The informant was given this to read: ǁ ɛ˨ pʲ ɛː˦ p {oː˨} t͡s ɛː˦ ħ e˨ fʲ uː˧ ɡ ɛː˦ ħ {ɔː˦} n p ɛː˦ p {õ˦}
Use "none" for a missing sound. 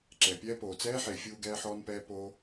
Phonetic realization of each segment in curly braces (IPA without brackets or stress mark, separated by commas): oː˨, ɔː˦, o˦